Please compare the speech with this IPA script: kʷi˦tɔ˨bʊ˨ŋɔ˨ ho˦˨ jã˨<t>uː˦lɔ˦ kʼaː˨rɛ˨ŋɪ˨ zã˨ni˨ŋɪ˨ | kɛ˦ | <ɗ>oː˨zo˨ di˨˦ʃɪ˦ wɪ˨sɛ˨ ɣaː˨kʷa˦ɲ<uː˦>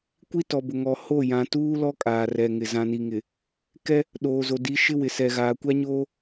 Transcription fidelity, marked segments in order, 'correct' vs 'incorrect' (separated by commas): correct, correct, incorrect